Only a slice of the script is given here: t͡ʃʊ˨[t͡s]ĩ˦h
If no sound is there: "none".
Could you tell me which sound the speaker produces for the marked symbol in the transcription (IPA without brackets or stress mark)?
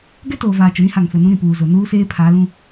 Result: ɾ